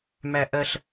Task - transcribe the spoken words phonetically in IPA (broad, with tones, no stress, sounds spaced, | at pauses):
m æ˦ ʔ ɜ˦ ɬ